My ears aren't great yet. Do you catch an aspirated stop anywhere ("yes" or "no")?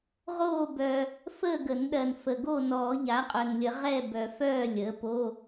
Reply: no